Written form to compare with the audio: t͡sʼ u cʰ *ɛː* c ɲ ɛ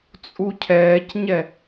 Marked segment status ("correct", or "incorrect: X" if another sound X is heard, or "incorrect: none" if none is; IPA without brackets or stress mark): correct